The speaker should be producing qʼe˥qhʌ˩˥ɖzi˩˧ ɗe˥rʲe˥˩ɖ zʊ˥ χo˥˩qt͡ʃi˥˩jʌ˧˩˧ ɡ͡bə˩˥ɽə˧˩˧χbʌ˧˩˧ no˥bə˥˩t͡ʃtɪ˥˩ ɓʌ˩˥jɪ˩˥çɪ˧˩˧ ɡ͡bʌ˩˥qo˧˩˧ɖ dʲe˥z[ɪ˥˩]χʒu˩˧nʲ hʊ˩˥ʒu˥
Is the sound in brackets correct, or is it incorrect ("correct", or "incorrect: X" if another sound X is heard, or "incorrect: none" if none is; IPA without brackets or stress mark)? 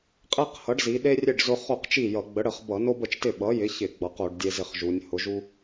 correct